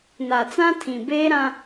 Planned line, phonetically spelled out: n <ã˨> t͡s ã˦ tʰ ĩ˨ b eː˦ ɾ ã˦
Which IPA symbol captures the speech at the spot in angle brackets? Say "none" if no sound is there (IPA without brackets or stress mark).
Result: a˨